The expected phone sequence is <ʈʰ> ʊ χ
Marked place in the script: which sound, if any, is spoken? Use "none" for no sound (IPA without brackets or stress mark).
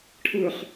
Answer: ʈʰ